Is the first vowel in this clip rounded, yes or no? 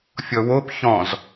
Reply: yes